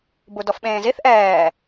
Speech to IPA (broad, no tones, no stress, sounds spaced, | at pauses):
b u d ɔ f ɓ ẽː z i θ ʔ ɛː